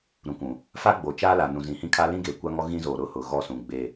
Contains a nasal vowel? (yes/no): yes